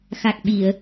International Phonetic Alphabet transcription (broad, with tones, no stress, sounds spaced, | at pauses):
x a˨˩ k̚ ɓ i˨˩˨ ə̯